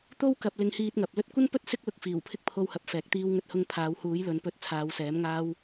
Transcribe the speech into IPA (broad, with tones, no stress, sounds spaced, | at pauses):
t̪ o˥ w k ɐ˨ p̚ l ɪ˧ ŋ h iː˧ t̚ ŋ ɐ˨ p̚ l ɵ˧ t̚ kʷ ɐ˥ n p ɵ˥ t̚ s ɪ˥ k̚ l ʊ˧ k̚ f iː˨˩ w pʰ ɪ˥ k̚ pʰ o˧ w h ɐ˨˥ p̚ f ɛː˨˥ k̚ t̪ iː˥ w ŋ ɵ˥ t̚ h ʊ˥ ŋ pʰ aː˨˧ w h uː˨˥ j l ɵ˨˧ n p ɵ˨˥ t̚ t͡sʰ aː˨˧ w s ɛː˨˥ m ŋ aː˥ w